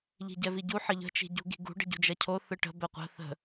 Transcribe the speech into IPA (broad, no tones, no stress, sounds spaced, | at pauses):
ʎ i̤ ɟ ɛ v i ɟ u ħ ə ʎ ə̤ t͡ʃ i̤ ɟ ṳ ɡ i̤ ɡ ṳ ɖ ə̤ ɟ ṳ d͡ʒ ɐ cʰ o θ ɯ ʈ ə̤ b ɛ qʷ ə̤ θ ə̤